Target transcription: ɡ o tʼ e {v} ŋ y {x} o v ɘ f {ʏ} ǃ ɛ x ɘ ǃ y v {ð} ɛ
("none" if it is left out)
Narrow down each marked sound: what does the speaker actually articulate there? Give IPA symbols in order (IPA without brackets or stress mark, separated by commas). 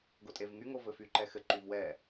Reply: v, ŋ, y, w